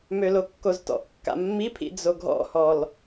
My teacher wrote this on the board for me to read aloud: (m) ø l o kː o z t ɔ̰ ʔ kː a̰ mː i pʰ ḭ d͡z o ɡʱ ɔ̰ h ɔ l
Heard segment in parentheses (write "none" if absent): m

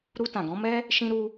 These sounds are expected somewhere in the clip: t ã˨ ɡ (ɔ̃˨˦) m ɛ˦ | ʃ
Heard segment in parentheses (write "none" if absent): ɔ̃˨˦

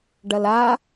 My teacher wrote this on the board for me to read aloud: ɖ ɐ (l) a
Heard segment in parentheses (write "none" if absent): l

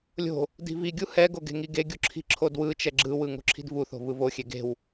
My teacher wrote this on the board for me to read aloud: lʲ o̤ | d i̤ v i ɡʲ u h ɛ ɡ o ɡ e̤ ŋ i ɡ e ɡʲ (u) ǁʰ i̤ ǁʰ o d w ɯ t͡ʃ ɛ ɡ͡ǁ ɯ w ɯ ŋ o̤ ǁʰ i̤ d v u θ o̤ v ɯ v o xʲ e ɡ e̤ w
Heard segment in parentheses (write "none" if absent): u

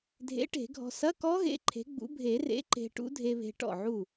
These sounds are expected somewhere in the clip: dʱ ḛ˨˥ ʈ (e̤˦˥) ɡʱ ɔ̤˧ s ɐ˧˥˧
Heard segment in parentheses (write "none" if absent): e̤˨˩˦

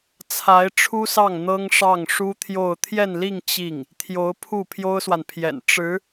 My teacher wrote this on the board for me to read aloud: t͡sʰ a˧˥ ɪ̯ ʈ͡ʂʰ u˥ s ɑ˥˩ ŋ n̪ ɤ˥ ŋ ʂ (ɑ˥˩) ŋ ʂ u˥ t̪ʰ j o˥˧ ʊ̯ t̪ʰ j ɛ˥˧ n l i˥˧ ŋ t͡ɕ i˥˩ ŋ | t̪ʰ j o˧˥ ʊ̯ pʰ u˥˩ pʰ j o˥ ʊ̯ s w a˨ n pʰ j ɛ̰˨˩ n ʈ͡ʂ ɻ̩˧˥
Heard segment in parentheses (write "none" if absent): ɑ˥˩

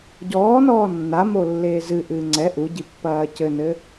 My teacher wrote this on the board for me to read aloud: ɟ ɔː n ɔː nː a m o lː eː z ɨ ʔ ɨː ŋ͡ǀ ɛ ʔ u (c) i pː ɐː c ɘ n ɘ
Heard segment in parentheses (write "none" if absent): ɟ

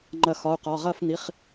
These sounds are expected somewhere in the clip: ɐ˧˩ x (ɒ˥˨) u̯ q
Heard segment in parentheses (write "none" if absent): ɒ˩˧˩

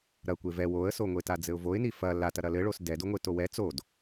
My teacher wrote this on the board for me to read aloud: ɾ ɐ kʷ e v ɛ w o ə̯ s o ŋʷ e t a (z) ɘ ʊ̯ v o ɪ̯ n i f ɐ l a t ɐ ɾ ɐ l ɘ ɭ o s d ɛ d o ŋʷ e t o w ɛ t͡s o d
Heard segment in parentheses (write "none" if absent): d͡z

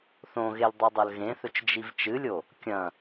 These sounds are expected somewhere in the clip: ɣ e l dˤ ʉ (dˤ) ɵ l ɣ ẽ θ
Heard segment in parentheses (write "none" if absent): dˤ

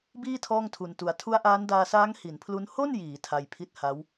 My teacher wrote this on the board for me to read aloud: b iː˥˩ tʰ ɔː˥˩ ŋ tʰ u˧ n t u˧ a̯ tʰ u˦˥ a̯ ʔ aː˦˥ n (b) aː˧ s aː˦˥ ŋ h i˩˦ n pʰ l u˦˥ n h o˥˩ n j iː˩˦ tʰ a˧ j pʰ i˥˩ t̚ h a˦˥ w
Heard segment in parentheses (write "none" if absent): d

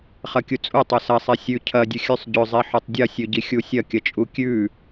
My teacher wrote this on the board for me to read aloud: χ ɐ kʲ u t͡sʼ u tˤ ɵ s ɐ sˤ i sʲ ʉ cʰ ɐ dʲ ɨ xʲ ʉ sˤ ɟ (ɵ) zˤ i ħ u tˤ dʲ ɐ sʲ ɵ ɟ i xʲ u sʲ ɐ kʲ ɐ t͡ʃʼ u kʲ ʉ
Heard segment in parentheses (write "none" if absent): ɵ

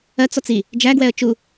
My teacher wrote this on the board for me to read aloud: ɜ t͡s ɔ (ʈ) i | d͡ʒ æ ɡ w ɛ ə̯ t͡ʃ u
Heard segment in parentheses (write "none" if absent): t͡s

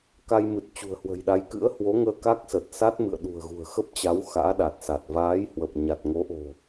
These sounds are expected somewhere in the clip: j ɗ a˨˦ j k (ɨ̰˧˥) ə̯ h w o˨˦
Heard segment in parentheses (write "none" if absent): ɨ̰˧˥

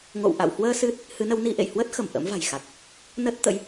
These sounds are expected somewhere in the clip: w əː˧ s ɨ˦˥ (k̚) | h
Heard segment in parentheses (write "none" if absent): t̚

